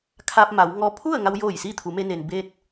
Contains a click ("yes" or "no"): no